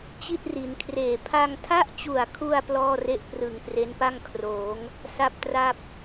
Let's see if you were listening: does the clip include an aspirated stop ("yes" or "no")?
yes